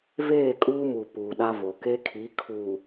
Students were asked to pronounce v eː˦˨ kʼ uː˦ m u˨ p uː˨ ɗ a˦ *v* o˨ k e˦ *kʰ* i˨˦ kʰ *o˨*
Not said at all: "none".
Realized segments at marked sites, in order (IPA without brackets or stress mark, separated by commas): v, kʰ, u˨